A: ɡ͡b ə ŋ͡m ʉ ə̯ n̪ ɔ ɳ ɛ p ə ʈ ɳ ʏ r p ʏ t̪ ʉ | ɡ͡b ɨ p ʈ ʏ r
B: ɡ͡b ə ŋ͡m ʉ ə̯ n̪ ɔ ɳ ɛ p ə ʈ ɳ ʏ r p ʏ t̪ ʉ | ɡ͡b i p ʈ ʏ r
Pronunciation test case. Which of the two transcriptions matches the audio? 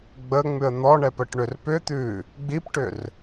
B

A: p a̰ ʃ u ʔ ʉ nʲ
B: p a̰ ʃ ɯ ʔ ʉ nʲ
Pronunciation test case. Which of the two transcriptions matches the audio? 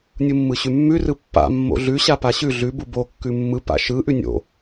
B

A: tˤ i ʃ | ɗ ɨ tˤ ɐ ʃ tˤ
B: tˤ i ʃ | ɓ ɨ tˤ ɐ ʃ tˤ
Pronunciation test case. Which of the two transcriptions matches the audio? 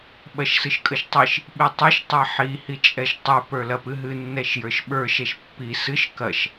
B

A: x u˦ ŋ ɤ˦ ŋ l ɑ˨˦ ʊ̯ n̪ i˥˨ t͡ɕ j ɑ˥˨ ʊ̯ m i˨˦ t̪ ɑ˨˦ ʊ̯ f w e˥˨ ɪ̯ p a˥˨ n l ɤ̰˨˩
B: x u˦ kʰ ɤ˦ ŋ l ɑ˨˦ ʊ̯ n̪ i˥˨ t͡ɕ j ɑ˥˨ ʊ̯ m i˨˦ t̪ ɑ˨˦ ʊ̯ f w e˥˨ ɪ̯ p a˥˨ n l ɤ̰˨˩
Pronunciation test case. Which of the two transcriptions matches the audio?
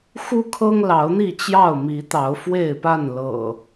B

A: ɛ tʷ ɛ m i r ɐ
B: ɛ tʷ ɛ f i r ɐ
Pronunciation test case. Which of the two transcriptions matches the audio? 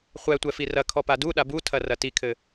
B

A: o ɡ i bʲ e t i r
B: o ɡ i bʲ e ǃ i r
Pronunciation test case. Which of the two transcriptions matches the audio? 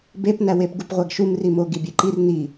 B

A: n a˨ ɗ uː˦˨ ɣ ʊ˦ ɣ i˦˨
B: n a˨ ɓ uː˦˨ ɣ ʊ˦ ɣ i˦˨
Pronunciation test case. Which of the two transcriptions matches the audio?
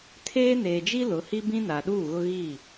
A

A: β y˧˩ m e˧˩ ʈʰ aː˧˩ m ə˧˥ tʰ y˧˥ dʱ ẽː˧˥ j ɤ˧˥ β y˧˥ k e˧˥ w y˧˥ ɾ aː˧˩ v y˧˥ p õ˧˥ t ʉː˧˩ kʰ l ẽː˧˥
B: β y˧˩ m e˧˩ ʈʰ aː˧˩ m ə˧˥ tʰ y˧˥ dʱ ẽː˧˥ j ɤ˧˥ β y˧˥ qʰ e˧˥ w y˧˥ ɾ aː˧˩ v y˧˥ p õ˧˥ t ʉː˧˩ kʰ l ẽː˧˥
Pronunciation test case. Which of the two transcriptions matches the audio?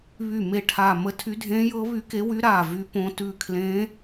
A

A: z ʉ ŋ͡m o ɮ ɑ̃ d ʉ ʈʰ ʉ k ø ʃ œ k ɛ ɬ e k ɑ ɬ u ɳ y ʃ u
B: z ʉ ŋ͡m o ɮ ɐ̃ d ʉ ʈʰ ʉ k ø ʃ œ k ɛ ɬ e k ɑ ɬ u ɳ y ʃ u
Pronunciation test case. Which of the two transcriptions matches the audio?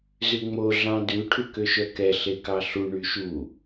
A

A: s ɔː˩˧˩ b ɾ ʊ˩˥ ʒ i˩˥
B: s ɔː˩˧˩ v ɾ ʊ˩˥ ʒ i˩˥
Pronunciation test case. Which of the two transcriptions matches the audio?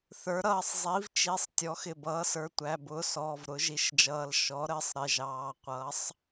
B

